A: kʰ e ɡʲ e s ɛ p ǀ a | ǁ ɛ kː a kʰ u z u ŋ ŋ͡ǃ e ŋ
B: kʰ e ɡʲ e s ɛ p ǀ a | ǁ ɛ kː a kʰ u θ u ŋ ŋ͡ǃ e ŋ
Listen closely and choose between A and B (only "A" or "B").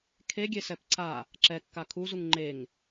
A